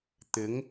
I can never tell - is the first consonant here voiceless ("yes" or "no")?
yes